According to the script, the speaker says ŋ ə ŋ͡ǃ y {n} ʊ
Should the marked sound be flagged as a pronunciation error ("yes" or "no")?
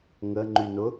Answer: no